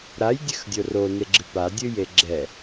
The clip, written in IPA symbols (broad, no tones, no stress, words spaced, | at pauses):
ɾajdʲɘxdʲo roneɡ͡ǁɨ padʲɨje ɡ͡ǁɛ